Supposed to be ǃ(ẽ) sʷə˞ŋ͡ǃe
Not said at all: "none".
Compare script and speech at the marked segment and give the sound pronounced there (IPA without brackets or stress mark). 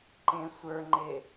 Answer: ẽ